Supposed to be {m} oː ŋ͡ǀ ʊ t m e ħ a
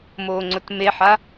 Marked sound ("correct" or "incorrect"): correct